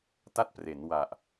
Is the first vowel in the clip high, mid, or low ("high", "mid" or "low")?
low